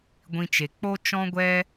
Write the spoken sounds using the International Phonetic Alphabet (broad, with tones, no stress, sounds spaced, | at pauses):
ɡʷ ĩ˧ t͡ʃ e˨ k͡p o˦ t͡ʃ ɔ̃˦ ɡʷ ɛ˦